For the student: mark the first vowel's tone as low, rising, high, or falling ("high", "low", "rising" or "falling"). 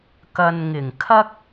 low